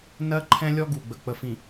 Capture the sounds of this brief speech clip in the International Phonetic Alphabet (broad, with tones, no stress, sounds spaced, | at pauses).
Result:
n ɜ˦ ǃʰ ɛ̃˦ lʲ ɔ˦ ɡ u˨ ɡ͡b ə˨ k͡p ə˨ f ĩ˨